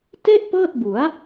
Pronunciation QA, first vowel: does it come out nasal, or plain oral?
oral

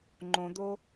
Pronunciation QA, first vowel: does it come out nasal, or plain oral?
nasal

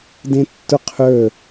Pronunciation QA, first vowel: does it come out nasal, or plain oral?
nasal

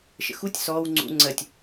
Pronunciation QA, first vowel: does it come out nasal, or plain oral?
oral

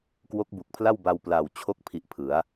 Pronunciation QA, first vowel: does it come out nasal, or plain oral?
oral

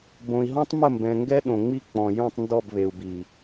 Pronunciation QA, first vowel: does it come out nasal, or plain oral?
nasal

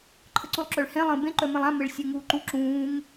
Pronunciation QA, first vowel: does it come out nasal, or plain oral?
oral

